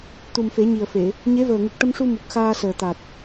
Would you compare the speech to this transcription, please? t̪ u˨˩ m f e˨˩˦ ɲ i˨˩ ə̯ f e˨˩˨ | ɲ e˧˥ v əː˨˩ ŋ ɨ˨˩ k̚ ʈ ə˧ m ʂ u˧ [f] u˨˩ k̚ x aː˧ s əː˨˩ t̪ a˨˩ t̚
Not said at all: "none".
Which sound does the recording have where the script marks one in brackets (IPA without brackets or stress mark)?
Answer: m